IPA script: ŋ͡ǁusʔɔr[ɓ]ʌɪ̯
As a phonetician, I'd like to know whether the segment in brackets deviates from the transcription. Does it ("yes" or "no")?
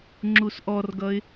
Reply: yes